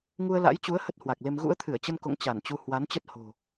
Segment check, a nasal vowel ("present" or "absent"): absent